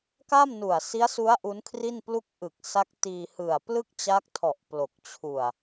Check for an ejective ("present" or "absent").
absent